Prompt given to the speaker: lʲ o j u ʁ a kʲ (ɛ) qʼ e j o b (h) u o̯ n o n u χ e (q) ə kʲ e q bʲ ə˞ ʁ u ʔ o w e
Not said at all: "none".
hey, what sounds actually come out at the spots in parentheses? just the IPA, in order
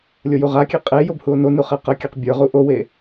e, h, q

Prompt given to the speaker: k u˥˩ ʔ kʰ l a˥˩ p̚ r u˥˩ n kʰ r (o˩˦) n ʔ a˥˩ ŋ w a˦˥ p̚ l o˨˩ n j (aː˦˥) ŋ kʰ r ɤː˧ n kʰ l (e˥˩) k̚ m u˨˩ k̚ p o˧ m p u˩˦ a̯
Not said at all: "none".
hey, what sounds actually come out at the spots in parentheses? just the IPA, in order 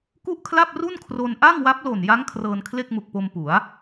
o˧, a˦˥, e˥˩

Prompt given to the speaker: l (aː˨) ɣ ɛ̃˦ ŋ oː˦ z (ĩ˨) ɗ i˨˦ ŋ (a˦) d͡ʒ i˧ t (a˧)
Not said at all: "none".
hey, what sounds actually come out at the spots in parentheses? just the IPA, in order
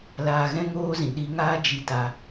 aː˧, ĩ˨, aː˦, a˧

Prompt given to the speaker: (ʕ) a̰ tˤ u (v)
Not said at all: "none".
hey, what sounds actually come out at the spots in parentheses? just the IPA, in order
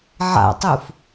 ʕ, f

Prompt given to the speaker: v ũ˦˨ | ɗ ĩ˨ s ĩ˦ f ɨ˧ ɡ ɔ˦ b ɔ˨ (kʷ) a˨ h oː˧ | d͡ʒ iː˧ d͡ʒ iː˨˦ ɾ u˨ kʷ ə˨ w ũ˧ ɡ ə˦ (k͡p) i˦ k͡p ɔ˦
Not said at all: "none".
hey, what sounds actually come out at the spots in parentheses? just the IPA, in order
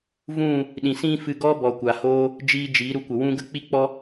kʷ, k͡p

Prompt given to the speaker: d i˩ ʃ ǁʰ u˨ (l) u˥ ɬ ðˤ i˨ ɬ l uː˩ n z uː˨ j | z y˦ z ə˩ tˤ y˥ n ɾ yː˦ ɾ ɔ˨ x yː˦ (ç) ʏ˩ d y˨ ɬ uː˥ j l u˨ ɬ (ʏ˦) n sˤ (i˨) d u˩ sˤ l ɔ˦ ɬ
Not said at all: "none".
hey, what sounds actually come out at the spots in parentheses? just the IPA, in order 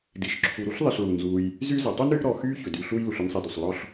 ɾ, ç, ʏ˥, i˨

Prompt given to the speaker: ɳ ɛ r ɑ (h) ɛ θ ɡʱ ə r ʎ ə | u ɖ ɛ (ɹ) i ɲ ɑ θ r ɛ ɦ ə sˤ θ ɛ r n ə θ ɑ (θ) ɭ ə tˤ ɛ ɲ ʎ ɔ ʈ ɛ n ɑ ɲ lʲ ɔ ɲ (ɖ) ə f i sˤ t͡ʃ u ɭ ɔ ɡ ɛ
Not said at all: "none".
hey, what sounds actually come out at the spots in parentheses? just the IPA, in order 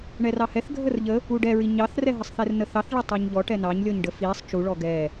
h, ɹ, θ, ɖ

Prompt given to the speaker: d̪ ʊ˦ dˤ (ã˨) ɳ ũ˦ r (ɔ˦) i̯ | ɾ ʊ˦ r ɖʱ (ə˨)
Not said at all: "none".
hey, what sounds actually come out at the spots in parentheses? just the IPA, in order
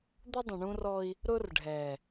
ə̃˨, ɔ˦, ɛ˨

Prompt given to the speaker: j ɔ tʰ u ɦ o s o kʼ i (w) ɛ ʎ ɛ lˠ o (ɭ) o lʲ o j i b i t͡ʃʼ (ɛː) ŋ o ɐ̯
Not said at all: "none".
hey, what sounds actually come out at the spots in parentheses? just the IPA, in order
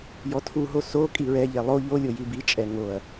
ɹ, ʎ, ɛ

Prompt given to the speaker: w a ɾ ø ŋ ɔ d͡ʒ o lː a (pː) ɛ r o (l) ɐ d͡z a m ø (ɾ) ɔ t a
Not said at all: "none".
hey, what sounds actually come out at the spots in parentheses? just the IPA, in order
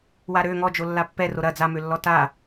pː, ɾ, lː

